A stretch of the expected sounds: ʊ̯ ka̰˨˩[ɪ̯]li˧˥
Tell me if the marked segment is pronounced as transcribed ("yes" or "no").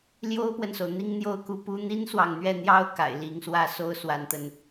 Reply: yes